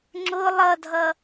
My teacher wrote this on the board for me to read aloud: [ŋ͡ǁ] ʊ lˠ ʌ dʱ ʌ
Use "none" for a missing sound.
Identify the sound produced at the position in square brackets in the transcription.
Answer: ŋ͡ǁ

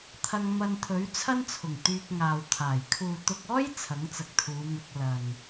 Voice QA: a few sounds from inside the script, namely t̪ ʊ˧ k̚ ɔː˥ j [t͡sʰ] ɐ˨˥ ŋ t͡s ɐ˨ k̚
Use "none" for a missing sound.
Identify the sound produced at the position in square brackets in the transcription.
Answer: t͡sʰ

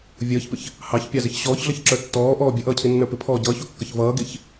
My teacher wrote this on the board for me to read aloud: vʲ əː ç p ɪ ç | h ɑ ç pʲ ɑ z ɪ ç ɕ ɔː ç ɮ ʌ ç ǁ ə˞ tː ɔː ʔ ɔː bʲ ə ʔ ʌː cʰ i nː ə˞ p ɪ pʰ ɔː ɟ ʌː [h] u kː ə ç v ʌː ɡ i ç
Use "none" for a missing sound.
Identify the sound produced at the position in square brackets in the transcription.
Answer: ç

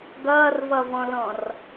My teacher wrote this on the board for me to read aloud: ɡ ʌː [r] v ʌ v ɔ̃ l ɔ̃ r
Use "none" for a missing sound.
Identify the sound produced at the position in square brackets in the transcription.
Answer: r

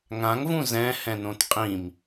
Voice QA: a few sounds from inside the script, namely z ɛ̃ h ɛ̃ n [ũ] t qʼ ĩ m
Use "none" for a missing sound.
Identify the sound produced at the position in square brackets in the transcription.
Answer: õ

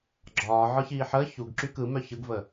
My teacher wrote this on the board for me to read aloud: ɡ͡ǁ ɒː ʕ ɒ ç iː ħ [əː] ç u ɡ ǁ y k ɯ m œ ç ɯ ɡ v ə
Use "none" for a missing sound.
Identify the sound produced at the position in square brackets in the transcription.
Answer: əː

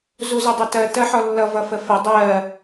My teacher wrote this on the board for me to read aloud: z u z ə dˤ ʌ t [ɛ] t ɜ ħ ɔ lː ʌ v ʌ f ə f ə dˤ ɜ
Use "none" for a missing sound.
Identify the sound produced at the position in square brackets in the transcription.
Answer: ɜ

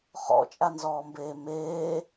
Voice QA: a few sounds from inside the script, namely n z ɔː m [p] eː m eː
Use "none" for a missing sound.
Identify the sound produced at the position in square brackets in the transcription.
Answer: b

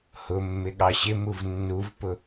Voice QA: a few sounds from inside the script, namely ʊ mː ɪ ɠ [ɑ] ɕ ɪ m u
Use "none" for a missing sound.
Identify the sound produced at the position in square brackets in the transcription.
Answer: ɑ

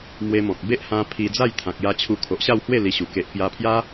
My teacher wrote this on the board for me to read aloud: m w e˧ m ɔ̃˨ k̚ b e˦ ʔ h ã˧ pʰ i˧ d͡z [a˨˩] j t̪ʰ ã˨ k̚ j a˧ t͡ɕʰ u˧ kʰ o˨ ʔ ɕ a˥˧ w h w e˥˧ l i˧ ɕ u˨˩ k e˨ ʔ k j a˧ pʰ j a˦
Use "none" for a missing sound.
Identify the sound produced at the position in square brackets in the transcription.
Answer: a˥˧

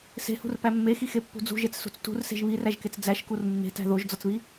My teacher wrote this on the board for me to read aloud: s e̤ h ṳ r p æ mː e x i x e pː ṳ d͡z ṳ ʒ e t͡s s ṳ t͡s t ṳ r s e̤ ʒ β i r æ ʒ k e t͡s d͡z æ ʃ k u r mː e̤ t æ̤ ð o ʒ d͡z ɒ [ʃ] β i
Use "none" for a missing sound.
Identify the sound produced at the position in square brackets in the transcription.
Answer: t͡s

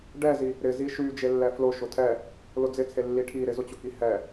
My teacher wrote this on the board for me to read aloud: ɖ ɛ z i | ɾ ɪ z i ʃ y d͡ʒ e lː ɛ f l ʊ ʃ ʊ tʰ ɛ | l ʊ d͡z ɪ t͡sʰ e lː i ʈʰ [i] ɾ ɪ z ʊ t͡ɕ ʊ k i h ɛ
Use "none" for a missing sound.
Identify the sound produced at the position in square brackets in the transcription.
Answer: i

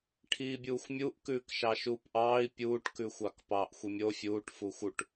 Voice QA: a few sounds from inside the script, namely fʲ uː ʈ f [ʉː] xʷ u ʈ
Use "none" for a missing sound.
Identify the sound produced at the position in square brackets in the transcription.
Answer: uː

